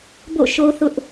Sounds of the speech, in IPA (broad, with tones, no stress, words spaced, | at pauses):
bo̰˦˨ʃo˦θʊ˦ʔ